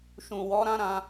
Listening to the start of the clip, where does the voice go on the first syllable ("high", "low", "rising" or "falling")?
low